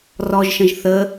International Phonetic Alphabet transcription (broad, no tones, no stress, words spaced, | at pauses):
rɔʒʃə̃ʒ θə